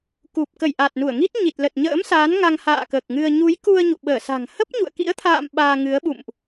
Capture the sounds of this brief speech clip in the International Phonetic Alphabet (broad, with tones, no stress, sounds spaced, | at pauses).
k u˨˩ p̚ k ə˧˩ j ʔ a˨˩ t̚ n u˧˩ ə̯ ŋ i˦˥ t̚ ɲ i˨˩ t̚ l ə˨˩ t̚ ɲ ə̰ː˧˥ m s aː˨˦ n ŋ a˧ ŋ h a̰ː˧˨ k əː˨˩ k̚ ŋ ɨ˧ ə̯ ɲ u˨˦ j k u˧ ə̯ ɲ ṵ˧˨ ɓ əː˧˩ s a̤˨˩ ŋ h ə˦˥ p̚ ɲ ṵ˧˨ ə̯ k ḭ˧˥ ə̯ t̪ʰ a̰ː˧˨ m ɓ aː˧ ŋ ɨ˨˦ ə̯ ɓ ṵ˧˨ m ʔ